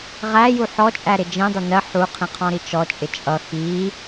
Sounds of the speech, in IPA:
ʁ æ j u ħ ɔ t͡ʃʼ æ ɾ ɪ d͡ʒ ĩ dˤ ɪ n ɜ ħ u qʰ ĩ qʰ ɔ̃ ɾ i t͡ʃ ɔ t͡ʃʼ ɪ t͡ʃʼ ʌ x i

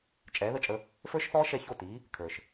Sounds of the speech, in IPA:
t͡ʃʼ ɛː˩˥ ð ə˥˩ t͡ʃʼ ə˧ | f ə˞˥ ʃ θ ɔː˥ ʃ ɛ˥˩ ç o˥˩ t iː˩˥ | kʰ ə˞˩ ʃ

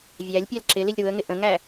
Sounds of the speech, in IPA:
vʲ æ lʲ pʲ æ l ǁ ɪ l i lʲ ɾ u ə̯ ŋ ɪ ʔ ə̃ ŋ æ

